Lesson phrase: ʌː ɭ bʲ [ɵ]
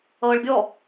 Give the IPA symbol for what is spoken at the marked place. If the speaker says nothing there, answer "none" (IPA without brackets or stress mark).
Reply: ɔ